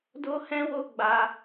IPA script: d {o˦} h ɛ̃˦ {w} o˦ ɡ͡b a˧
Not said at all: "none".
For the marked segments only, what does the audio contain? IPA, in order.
o˦, w

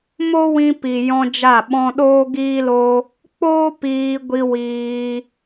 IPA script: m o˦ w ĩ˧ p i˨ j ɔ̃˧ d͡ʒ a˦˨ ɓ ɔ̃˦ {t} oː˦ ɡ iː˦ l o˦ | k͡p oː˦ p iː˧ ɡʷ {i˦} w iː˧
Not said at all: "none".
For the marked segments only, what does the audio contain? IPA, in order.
ɗ, i˧

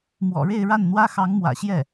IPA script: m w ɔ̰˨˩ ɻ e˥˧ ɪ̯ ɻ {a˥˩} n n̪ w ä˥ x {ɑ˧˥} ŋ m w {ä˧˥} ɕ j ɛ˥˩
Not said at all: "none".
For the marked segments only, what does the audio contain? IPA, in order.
a˥˩, ɑ˧˥, ä̰˨˩

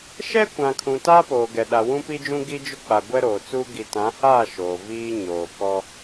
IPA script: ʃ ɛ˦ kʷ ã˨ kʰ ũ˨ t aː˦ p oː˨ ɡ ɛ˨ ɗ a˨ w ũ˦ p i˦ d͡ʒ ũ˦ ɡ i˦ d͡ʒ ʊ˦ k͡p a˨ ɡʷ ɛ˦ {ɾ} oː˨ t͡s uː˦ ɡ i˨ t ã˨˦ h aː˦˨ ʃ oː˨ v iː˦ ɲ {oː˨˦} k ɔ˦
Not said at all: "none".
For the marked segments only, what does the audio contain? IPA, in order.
ɾ, oː˨

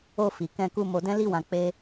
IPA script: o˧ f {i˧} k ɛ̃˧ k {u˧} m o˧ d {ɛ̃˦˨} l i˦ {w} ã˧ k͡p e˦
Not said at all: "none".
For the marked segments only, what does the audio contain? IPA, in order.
i˨, u˧, ɛ̃˦, w

